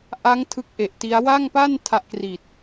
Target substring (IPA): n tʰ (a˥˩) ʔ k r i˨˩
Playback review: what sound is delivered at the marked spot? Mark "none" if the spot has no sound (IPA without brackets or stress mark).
a˦˥